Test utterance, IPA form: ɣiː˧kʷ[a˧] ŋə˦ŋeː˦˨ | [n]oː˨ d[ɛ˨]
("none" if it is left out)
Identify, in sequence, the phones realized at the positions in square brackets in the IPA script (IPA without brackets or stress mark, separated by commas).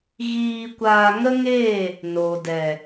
aː˧, n, ɛ˨